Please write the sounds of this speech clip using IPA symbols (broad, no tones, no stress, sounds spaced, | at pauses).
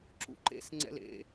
ǁ ṵ ǃ ḛ s ŋ͡ǀ ɛ̰ l ḛ